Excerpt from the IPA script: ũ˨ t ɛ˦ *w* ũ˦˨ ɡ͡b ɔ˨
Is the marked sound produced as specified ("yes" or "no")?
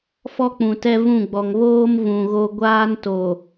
no